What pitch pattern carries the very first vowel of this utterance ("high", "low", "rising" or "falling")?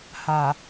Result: low